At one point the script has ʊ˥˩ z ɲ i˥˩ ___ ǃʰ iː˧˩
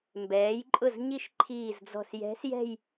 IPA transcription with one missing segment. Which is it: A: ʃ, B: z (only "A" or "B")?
A